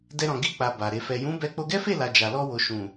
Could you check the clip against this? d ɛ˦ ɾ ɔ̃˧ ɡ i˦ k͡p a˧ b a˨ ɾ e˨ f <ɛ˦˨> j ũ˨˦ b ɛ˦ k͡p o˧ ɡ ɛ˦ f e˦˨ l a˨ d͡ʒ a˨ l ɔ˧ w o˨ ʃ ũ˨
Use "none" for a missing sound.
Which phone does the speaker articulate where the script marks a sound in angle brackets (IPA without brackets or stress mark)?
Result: ɛ˨